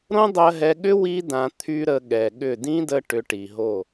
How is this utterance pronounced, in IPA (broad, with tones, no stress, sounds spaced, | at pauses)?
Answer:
ɾ õ˦ dˤ ɜ˧ ɦ ɛ˧ ɠ ʏ˦ w i˦ d ã˧ t̪ʰ y˦ ɾ ə˧ ɠ ɛ˨ ɠ ʏ˦˨ d ĩ˦ d ə˧ ʈ ʏ˧ ʈ i˨ ɦ o˦˨